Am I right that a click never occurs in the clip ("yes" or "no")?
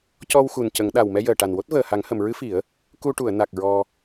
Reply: yes